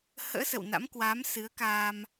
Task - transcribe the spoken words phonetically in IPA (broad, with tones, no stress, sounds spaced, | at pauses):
h ə̰ː˧˥ s ə̰˧˨ w n a̰˧˥ m k w aː˨˦ m s ɨ˨˦ ə̯ k aː˧ m